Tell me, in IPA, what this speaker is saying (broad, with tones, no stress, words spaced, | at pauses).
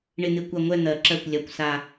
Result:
ɳɪ˥˧n̪ɪ˥˩kʷa˥˧ ŋʷɛ˥˧n̪ɜ˧˩ǁɜ˥˩kʷ lʲa˥˩kʷsa˥˧